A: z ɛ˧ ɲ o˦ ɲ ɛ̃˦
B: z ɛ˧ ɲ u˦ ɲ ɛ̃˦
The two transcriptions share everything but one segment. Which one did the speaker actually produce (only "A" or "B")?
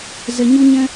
B